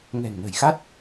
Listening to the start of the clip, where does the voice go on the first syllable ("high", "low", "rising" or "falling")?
low